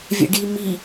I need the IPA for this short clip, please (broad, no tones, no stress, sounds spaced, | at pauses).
vʲ ɛ̰ ɖ i m i